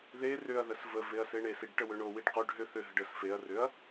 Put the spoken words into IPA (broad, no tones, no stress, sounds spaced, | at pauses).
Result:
ð e r ʏ ɐ̯ ð ə s v ə v e ɐ̯ s e ɳ e s i ɖ ʈ ə w ʏ ɳ o w i ɖ q o ɖ ɦ ʏ θ ʏ ɦ ə ɖ ə s f e ɐ̯ r ʏ ɐ̯